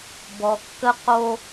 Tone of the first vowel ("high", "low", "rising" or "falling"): low